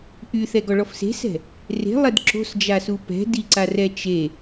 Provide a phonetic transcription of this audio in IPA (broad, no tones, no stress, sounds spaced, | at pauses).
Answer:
ʔ y θ ɛ ɡ ɔ ɭ ɔ f s e̤ s ɛ̤ | r e̤ lˠ ɛ d ǁ o̤ s d͡ʒ a s u p ɛ̤ d i ǀ a r ɛ t͡ʃ e